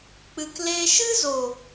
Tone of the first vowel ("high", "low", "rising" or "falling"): low